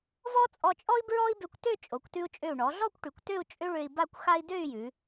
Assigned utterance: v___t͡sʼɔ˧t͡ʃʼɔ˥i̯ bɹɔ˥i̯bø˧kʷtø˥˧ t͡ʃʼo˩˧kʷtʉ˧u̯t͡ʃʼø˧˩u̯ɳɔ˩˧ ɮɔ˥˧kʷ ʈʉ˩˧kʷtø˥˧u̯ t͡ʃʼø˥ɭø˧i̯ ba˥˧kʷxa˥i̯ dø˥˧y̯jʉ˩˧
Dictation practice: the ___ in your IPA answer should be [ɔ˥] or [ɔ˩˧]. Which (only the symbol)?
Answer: ɔ˥